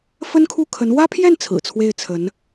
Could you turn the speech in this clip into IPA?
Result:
f ə˥ n kʰ u˥˩ kʰ ə˧˥ n w ä˥ pʰ j ɛ˥˩ n t͡sʰ ɹ̩˨˩ t͡sʰ w e˥˩ ɪ̯ t͡sʰ ə˧˥ n

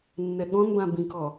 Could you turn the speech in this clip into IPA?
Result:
nː ɛ ɠ ɔ̃ n b ã b ĩ k ɔ

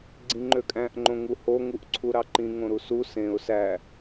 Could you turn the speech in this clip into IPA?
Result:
ɡ͡ǀ ĩ ŋ͡ǃ ø kʼ æ̃ ʔ ŋ͡ǃ õ ŋ u h o ŋ u ʔ ǀʰ u ɾ ɑ ǃ ĩ ŋ õ ɾ u s u s ẽ ʊ̯ s æ

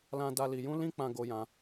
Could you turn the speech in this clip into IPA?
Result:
l ã˧ d a˧ l i˧ j ũ˦ l ĩ˦ k͡p ã˧ ɡ o˦ j ã˦

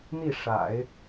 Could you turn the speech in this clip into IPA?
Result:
n̪ i˥˩ ʂ a̰˨˩˦ ɪ̯

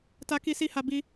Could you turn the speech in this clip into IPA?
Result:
t a˧ k i˧ s i˧ h a˧ b i˧

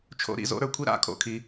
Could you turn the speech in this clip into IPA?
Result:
t͡ʃʰ o̰˧˥˧ ɾ ḭ˨˦ z o̰˧˥˧ ɾ ə˞˦˥ kʷʰ i˧˥˧ ɾ a̰˧˥˧ kʰ o̰˧˥˧ kʰ i˨˦

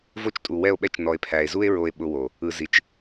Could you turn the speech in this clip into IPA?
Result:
v o˦ t͡ʃ tʼ u˨ w ɛ˦˨ o̯ ɓ ɛ˦ t͡ʃ n ɔ˨ e̯ pʰ æ˨ e̯ z u˦ e̯ ɹ o˧ e̯ ɓ ʊ˧ w o˨ | ɯ˨ z i˨ t͡ʃ

